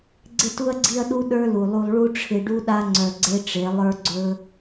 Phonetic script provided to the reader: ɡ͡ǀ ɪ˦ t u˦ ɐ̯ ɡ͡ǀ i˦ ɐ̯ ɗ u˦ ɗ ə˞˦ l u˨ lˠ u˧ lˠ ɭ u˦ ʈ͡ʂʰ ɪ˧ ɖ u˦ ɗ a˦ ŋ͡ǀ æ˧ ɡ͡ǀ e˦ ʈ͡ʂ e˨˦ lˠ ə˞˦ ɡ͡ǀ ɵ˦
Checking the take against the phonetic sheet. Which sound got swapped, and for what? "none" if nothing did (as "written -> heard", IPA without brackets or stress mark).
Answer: æ˧ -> œ˧